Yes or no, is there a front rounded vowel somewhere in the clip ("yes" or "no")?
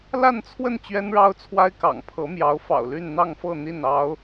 yes